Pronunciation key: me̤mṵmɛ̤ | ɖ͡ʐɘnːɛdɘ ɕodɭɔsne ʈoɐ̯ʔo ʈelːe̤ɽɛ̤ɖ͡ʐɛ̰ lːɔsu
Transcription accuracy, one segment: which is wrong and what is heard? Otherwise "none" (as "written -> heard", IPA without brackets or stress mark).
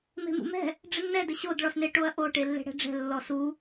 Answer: ɛ̰ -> ɛ̤